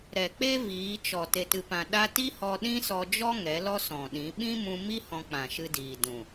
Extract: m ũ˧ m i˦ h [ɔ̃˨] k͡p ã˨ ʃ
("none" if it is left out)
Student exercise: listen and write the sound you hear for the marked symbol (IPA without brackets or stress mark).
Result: ɔ̃˧